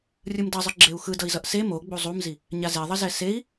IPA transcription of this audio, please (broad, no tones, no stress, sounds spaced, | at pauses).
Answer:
rʲ ɯ m d ʌ zˤ ɯ ɡ͡ǁ e u̯ x ɯ d ʌ i̯ z ʌ ʔ s e m o ɡ͡b u zˤ u m z i | ɲ a z e ðˤ ʌ z ɛ s e i̯